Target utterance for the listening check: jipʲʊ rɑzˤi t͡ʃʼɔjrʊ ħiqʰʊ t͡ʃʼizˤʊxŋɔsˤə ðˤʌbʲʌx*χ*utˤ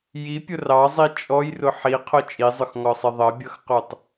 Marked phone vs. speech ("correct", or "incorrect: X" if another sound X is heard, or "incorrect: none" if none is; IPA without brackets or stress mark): incorrect: q